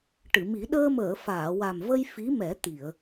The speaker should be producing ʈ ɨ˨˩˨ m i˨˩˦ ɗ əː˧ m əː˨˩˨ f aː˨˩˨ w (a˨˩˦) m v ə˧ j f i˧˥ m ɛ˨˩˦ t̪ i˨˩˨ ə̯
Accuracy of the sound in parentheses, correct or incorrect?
incorrect